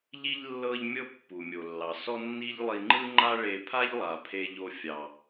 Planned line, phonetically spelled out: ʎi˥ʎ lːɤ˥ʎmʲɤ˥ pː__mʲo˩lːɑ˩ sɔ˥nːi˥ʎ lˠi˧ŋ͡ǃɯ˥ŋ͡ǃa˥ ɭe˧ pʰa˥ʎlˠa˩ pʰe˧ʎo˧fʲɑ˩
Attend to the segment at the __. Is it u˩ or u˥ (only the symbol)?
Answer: u˩